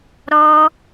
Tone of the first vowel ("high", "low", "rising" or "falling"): high